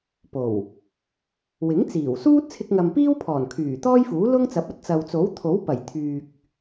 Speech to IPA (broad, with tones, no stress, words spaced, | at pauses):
po˨˩w | wɪ˨˥ŋt͡siː˨˩wsuː˥t̚ t͡sʰɪ˧k̚ŋɐ˨mpiː˥w pʰɔː˨˩nkʰyː˨˩t̪ɔː˥jfuː˨˥ lʊ˥ŋt͡sɐ˨˥p̚ɐ˨˥t̚ t͡sɐ˨wt͡so˨˥w t̪ʰo˨˥wpɐ˨˩j t̪ʰyː˨k̚